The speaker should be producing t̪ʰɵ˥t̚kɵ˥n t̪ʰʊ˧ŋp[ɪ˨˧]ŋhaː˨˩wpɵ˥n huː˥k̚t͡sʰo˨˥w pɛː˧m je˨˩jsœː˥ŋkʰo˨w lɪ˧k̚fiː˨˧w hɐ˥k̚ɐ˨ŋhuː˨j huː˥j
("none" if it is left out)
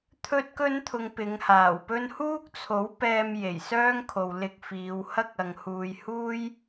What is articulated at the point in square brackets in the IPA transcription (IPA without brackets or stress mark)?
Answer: ɪ˨˧